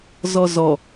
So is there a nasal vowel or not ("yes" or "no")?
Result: no